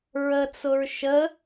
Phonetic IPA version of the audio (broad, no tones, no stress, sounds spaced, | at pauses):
ɹ ə t͡s ʊ ɹ ʃ ə